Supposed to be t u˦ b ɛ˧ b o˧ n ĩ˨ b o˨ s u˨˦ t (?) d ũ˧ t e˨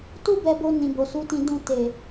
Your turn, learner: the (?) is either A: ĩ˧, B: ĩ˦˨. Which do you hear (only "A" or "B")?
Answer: A